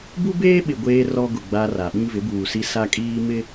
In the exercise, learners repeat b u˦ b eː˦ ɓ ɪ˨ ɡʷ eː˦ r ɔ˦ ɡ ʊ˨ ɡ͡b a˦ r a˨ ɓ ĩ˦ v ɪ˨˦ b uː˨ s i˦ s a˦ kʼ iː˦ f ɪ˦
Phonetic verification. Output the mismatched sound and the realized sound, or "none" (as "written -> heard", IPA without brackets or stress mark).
f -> m